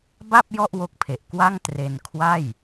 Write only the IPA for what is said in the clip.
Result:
ba˥˩p̚ jɔ˥˩ʔwo˦˥k̚pʰe˨˩ʔ kwa˥˩ŋ tre˧n kʰwa˥˩j

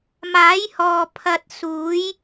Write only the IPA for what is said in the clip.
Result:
maː˨˥jhɔː˨ pʰɐ˧t̚ suː˨˥j

